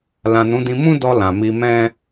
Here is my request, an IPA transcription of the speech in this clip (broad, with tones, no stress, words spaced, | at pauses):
lã˨nũ˨˦dĩ˧ mũ˦dɔ˧ lã˨mi˧mɛ̃˦